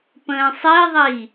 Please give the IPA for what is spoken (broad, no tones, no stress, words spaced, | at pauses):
pə̃ːsˤiðˤi